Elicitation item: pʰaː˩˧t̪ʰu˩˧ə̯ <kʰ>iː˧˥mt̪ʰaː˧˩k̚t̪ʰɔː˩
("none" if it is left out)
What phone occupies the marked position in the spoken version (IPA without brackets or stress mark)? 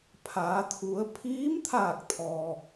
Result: pʰ